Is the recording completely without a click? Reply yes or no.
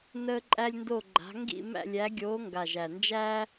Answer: no